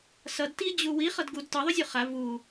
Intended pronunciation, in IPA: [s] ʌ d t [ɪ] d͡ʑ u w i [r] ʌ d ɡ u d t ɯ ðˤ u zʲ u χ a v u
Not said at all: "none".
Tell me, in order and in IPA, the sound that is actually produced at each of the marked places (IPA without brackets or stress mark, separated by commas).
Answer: s, i, χ